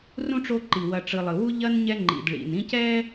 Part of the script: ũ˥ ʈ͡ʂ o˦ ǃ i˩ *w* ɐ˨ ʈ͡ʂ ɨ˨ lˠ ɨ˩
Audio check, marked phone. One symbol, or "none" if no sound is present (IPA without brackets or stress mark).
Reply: w